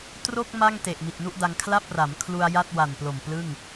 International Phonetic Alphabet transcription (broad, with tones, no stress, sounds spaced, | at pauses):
t r o˥˩ k̚ m a˥˩ ŋ t e˨˩ ʔ m i˨˩ t̚ n u˥˩ ʔ d a˧ ŋ kʰ l a˥˩ p̚ r a˩˦ m kʰ l u˧ a̯ j a˥˩ t̚ w a˨˩ n p l o˨˩ m p l ɯ˥˩ ŋ